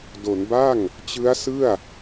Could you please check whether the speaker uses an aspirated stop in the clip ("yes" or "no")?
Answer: no